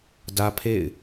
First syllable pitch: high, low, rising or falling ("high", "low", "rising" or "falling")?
high